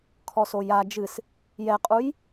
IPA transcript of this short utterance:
kʰ ɔ s o j a d͡ʒ ɨ s | j ɛ qʼ u j

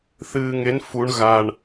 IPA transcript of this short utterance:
θ ɨː ŋ e n f u ɳ ɣ a ɳ

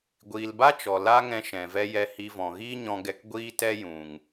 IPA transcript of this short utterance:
ɡʷ iː˨ l b a˦ t͡ʃ ɔ˨ l a˦ ŋ ɛ̃˧ ʃ ɛ̃˨ v ɛ˦ j ɛ˧ h i˧ v ɔ̃˨ ɣ iː˦ ɲ ɔ̃˧ ɡ ɛ˧ k ɡʷ iː˦ t ɛ˦ j ũ˨ ŋ

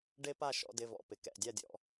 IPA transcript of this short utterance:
ɖ e˦˥ p a˥˨ ʃ ɔ̰˧ d ɪ˧˥˧ v ɔ̰˧˥˧ p ɪ˩˧˩ k ɛ̰˩˧˩ dʲ a˥˨ dʲ ɔ̰˧

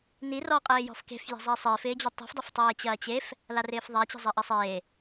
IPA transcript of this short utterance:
n i r ɔ qʼ ɪː j ɔ̤ f k e̤ f j e̤ zˤ ɛ sˤ ɪː f ɪː d͡ʑ ɐ tˤ i̤ f dˤ ɪ f tˤ eː t͡ɕ ɐː t͡ɕ e f | l a r ɪː f ðˤ a t͡ɕ e̤ zˤ ɛ ʔ ɐ sˤ eː

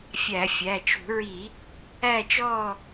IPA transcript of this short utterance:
fʲ æ˧˩˧ fʲ æ˩˧˩ t͡ʃ ṳ˧˩˧ ɹ i˧˩˧ | æ˦˨ t͡ʃ ɔː˦˨

